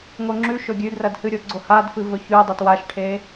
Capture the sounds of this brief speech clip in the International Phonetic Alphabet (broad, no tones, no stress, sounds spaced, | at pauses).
ŋ o ŋ͡ǁ ʉ ʃ ɵ ɡʲ ʉ d r ɐ d h ɨ ɾʲ o ɡ͡ǀ o h a d f ɨ v ɵ ç ʉ dˤ ɨ t w a ʃ ʈʰ e